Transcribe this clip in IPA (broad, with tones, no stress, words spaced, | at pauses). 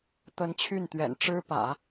t̪ə˧˥n t͡ɕʰy˥˩nt̪ɥɛ̰˨˩n ʈ͡ʂɻ̩˥pä̰˨˩˦